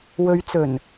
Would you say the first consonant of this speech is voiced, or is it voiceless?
voiced